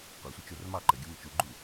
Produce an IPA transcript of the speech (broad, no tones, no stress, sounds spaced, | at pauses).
qʷ a sʷ ə t͡ʃ o r m ɑ ǃ ə ɡʲ ɔ m ə t͡ʃ u ɡ͡ǃ u